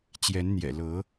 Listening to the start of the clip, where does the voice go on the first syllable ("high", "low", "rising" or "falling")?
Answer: rising